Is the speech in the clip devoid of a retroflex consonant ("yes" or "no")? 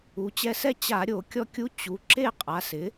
yes